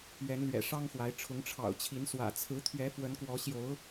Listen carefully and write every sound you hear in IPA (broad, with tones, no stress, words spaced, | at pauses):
ɥɛ˨˦nlɥɛ̰˨˩ ʂɑ˦ŋxwa˨˦ɪ̯ʈ͡ʂʰʊ˨˦ŋ ʈ͡ʂʰɑ̰˨˩ʊ̯t͡ɕʰi˨˦nswä̰˨˩ t͡sʰɹ̩˨˦t̪ʰɥɛ˨˦ fwə˨˦nkwɔ˨˦ ɕjo˨˦ʊ̯